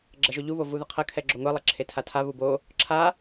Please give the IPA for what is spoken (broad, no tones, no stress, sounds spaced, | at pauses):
ɡ͡ǁ ɐ ʒ o ʎ u β o v u ð ɐ qʰ ɐ kʰ ɛ ɡ͡ǁ o ŋʷ ɛ lˠ ɐ ǁʰ e tʰ a tʰ a β u b o | ǁʰ a